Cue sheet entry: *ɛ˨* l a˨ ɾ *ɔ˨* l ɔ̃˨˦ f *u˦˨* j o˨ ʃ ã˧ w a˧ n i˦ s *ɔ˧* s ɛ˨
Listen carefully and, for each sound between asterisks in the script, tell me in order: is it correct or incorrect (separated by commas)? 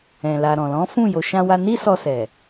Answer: incorrect, incorrect, incorrect, correct